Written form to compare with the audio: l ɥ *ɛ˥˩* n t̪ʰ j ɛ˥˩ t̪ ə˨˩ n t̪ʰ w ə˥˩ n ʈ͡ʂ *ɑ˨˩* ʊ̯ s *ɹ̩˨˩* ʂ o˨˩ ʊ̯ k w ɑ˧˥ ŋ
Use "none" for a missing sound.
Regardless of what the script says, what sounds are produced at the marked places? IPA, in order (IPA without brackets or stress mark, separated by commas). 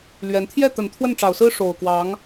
ɛ˧˥, ɑ˨˩, ɹ̩˥